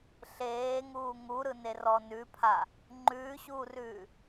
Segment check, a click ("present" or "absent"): present